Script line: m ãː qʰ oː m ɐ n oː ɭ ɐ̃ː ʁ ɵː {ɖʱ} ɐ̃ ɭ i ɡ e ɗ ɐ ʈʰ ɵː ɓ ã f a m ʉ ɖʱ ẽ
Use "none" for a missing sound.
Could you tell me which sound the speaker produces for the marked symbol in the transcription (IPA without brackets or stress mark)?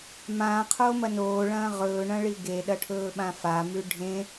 ɳ